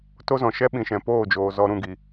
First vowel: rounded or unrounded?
rounded